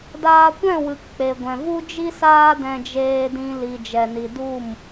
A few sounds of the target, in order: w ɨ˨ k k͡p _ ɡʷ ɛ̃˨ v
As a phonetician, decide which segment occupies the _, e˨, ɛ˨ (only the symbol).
e˨